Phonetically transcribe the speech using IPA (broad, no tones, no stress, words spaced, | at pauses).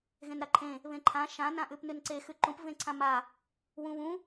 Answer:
ɣẽnɾaǃʰẽ | βẽǃʰã ʃã nãʔʉpnʉnǀe xʉǃũp vẽǀʰãma | wũβũ